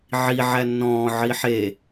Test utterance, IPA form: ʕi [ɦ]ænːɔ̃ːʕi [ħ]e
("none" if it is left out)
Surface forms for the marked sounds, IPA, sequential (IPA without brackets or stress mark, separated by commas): ʕ, ħ